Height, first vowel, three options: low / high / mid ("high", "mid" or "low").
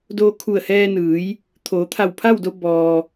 mid